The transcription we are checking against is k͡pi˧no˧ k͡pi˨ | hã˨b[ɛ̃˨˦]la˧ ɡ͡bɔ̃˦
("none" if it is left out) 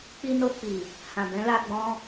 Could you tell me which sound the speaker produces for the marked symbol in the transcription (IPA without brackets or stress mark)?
ɛ̃˨˦